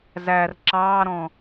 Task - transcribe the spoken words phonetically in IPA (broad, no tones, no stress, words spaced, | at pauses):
zær ǁɑːɾɔ̃